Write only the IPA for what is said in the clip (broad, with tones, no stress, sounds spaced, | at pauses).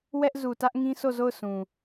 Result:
w ɛ˦ ʔ z u˨ t ä˦ ʔ ŋ ĩ˦ sʰ o˦˨ z o˦˨ ʊ̯ s ũ˨